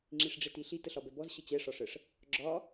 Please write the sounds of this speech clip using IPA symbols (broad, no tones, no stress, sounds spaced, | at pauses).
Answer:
ŋ͡ǁ i ʂ ɖ͡ʐ e t i ɬ i t ə ɬ ɒ b ɛ b ɔ z ɕ ə t͡ɕ ɛ ʂ ɒ ʂ ə ʂ | ɡ͡ǁ ɒ